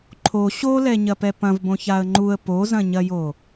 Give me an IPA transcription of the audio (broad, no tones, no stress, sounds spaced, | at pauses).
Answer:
ǃʰ o ɕ o l ɛ ɲ ɐ p ɛ p ɐ̃ v b õ ç a ə̯ ŋ͡ǃ u ə̯ p o z ɐ̃ ɲ ɐ j o